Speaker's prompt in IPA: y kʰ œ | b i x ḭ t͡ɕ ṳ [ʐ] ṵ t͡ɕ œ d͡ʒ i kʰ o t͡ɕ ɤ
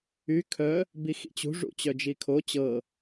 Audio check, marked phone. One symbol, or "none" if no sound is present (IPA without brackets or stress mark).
ʐ